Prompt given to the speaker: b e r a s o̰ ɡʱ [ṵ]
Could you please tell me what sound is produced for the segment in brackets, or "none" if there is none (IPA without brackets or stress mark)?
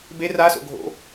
o̰